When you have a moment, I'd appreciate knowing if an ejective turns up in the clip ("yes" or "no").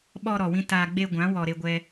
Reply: no